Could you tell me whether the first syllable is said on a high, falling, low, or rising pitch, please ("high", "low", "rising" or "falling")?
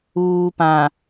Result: low